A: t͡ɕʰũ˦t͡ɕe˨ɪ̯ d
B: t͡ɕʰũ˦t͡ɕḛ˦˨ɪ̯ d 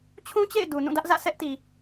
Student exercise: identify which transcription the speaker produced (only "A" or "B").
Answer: B